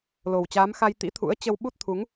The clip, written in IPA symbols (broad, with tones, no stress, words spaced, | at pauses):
lo˨˩wt͡ɕaː˨˦mxa˧j t̪ḭ˧˥t̪ʰṵ˧˥ə̯t͡ɕə˧w ɓu˦˥t̚t̪ʰu˨˦ŋ